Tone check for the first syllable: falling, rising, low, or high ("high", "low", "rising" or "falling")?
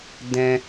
high